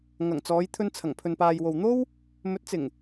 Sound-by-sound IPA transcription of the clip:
ŋ ɐ˨˩ ŋ t͡s ɔː˨˧ j t̪ʰ ɵ˧ n t͡sʰ ɐ˨˩ ŋ pʰ ɵ˨ n p aː˨ j w o˨ w n̪ o˥ w | m ɵ˨˥ t̚ t͡s ɪ˨˩ ŋ

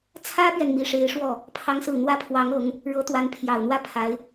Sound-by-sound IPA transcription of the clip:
t͡sʰ ä˥ p ɥ ɛ˨ n m i˧˥ ʂ e˧˥ ɪ̯ ʂ w ɔ˥˩ | pʰ ɑ˥ ŋ s ɹ̩˥˩ n̪ w ä˥ pʰ w ɑ˧˥ ŋ ɤ˧˥ ŋ | ɻ ɤ˧˥ t̪ w a˧˥ n pʰ j ɑ˨˩ ʊ̯ n̪ w ä˥˩ pʰ a˧˥ ɪ̯

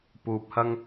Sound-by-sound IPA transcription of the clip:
p uː˨ p̚ h ɐ˧ ŋ

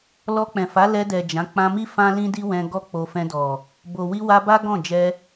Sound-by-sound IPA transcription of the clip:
l ɔ˧ k͡p ɛ̃˨ f a˨˦ l ɛ˧ d ɛ˨ d͡ʒ ã˨˦ k͡p ã˧ m i˦ f ã˦ l ĩ˦ d i˦ w ɛ̃˧ ɡ ɔ˦ k͡p o˧ f ɛ̃˧ d ɔ˨ | b o˨ w i˧ w a˧ b a˦ ɡ ɔ̃˦˨ d͡ʒ ɛ˧

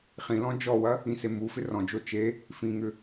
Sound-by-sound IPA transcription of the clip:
χ ĩ l ɔ̃ d͡ʒ ɔ w ɐ | ĩ s e m u f ɪ r ɔ̃ d͡ʒ o t͡ʃ e | f ĩ ŋ ʏ

